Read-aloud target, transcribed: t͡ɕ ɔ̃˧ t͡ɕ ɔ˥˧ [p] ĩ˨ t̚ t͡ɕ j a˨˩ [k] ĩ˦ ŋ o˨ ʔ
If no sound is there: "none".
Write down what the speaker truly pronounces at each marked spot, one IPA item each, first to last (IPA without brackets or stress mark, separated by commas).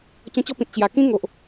p, k